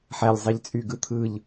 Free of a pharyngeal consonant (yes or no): no